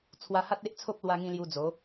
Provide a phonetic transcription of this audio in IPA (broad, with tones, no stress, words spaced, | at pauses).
t͡sʰwa˧ha˦t̚ e˦ʔt͡sʰo˦p̚ lwa˧ŋĩ˧ lju˧d͡zo˨˦